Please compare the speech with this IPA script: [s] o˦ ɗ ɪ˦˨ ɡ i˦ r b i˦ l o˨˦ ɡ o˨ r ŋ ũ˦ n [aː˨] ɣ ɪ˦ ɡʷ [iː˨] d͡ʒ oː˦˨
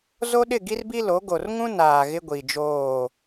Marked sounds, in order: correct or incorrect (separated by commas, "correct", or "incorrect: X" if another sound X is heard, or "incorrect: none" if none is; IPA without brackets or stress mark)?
incorrect: z, correct, incorrect: i˨